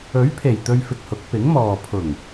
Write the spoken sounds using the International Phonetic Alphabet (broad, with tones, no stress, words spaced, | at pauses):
ɵ˨˥ɥpʰe˨˩j t̪ɵ˧ɥfɪ˨k̚hʊ˨˥k̚ pɪ˨˥ŋmɔː˨ pʰʊ˨˩ŋ